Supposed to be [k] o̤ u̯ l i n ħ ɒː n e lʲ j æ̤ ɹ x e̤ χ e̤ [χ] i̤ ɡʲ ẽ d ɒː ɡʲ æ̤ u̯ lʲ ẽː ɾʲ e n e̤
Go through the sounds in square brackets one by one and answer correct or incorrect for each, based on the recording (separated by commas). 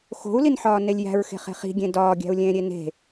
incorrect, correct